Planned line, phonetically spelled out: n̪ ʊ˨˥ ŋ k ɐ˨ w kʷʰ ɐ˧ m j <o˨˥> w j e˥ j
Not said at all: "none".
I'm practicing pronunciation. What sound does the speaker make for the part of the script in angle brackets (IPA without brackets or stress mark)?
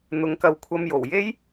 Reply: o˨˩